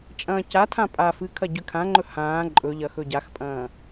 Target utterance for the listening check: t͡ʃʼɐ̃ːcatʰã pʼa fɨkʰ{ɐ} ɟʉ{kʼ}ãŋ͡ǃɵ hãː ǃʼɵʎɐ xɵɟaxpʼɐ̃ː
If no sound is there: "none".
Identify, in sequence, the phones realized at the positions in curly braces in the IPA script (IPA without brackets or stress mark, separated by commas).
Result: ɐ, kʰ